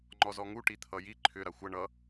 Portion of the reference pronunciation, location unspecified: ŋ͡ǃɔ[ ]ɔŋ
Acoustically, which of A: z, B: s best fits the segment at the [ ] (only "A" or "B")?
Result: A